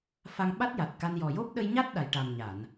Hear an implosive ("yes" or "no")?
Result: yes